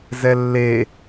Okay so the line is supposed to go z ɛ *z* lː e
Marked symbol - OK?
no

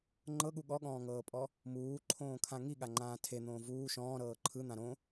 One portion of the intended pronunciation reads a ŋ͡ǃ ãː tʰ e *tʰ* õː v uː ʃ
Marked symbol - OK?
no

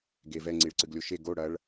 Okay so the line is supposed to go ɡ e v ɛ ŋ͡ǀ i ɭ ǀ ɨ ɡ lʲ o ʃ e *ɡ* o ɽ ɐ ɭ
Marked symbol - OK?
yes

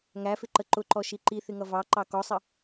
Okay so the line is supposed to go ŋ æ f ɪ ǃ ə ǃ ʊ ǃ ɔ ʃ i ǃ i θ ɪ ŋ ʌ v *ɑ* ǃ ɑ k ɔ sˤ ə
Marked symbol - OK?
yes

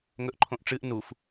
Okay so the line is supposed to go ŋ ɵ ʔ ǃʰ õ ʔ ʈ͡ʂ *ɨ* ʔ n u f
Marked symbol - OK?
yes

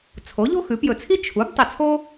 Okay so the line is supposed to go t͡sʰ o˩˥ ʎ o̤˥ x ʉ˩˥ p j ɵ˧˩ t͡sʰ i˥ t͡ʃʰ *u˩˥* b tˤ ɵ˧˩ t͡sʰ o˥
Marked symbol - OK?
yes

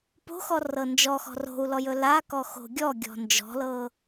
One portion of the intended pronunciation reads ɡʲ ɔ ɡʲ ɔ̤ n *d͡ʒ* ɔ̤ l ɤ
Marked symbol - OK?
yes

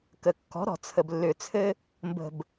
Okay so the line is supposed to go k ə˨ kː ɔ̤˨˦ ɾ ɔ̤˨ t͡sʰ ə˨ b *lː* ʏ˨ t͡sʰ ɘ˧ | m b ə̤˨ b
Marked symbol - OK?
yes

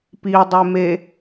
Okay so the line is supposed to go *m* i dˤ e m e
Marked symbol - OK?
no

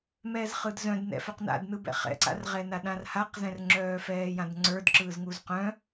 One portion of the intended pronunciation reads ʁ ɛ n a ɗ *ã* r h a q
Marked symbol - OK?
yes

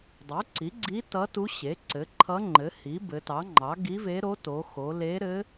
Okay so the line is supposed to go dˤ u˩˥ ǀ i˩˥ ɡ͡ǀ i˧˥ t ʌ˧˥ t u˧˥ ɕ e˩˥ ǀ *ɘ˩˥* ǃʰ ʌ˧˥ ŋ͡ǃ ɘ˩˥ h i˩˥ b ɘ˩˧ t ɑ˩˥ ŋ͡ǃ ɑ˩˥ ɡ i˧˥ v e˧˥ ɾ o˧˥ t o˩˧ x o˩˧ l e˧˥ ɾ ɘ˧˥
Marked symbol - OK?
yes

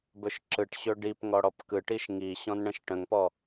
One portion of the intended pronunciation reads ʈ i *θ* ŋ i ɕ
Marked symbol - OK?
no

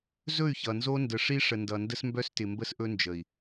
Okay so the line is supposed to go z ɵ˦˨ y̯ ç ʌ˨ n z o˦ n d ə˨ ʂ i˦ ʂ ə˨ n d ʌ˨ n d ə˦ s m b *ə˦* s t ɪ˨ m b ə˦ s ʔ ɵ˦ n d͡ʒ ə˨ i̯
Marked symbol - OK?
no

